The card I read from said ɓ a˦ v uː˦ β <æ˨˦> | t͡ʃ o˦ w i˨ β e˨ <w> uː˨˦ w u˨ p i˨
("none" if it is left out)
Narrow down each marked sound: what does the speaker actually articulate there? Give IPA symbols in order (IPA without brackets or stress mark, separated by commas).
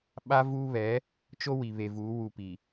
ɛ˨˦, v